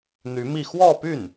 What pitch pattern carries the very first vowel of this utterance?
rising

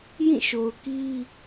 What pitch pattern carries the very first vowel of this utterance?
falling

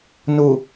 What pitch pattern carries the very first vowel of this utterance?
low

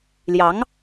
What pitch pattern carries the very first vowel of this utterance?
rising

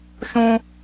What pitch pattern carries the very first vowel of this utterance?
high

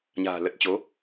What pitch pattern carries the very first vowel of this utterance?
low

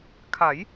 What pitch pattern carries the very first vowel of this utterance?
rising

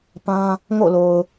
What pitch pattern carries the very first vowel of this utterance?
high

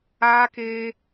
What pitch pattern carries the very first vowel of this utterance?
high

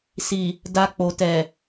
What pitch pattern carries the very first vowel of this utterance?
low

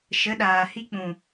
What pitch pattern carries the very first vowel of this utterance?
rising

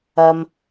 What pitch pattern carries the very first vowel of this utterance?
low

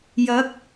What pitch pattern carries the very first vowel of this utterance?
rising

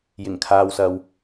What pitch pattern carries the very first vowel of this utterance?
low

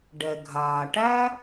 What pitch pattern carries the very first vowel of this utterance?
low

